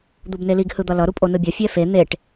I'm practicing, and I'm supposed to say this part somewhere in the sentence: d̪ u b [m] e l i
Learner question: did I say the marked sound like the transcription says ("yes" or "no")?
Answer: no